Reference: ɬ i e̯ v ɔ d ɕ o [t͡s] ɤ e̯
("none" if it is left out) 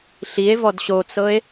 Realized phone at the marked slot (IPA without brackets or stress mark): t͡s